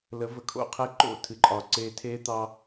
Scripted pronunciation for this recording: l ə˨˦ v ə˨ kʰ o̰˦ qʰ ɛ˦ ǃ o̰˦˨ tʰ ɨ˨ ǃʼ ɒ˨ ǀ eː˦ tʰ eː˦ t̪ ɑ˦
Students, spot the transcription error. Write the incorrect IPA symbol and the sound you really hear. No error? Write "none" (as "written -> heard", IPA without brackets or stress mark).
none